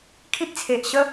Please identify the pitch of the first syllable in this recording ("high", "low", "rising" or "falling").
high